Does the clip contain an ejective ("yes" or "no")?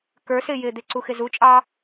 yes